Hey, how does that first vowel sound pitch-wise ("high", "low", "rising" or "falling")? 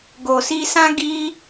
low